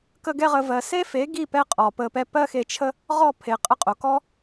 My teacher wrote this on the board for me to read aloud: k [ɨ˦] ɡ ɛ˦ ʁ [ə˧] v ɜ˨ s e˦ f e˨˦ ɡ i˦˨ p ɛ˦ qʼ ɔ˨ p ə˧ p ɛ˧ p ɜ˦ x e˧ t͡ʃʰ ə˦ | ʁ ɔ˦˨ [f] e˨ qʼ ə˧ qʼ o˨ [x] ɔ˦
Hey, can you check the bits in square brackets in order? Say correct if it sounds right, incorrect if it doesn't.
incorrect, correct, incorrect, incorrect

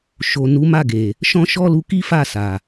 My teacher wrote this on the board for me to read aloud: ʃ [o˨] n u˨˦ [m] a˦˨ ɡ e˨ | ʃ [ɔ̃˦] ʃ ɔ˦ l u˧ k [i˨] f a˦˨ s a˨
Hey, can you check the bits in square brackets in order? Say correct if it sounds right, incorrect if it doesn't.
correct, correct, correct, incorrect

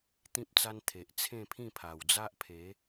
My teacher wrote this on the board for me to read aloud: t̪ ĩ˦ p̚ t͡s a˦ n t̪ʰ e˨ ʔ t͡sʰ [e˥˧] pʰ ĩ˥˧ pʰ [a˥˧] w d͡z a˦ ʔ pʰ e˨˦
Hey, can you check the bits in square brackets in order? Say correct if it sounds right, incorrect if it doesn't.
incorrect, incorrect

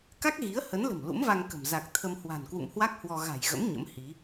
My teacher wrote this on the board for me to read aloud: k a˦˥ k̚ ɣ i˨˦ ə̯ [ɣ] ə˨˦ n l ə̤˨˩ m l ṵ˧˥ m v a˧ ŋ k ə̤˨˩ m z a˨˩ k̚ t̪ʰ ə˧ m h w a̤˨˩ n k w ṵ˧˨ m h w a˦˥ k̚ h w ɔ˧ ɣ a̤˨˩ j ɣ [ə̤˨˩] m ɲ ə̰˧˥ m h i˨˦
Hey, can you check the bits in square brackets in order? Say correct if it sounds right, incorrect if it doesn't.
incorrect, incorrect

